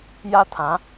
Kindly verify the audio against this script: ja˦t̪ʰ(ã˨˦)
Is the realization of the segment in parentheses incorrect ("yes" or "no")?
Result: no